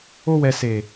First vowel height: mid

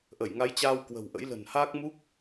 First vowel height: mid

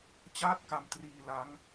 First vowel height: low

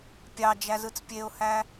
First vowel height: low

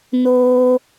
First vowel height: mid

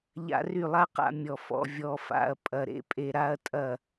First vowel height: low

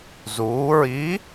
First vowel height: high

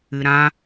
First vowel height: high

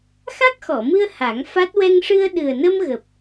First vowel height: low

